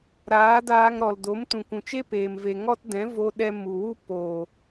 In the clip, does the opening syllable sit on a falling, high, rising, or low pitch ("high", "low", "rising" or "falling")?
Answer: rising